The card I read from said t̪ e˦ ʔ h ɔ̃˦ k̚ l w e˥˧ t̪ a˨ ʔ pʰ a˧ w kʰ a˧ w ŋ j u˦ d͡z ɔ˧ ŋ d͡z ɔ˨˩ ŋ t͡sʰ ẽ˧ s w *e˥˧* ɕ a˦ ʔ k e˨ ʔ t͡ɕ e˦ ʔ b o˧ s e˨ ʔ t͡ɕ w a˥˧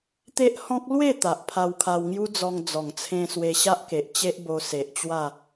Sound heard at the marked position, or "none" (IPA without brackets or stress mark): e˧